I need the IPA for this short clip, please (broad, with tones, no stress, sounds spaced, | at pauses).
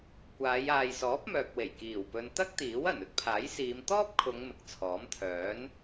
kʷ aː˨˧ j aː˨ j s ɔː˨˥ p̚ m œː˨ k̚ w e˨˩ j k iː˨˩ w p ɵ˨ n t̪ ɐ˥ k̚ t̪ iː˨˥ w ɐ˨˩ n ɵ˥ t̚ pʰ aː˨˥ j s iː˨˧ m t̪ ɔː˥ p̚ kʰ ʊ˨˧ ŋ m ɪ˨ k̚ t͡sʰ ɔː˨˥ m t̪ʰ œː˨˥ n